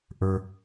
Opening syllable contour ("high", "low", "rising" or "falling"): high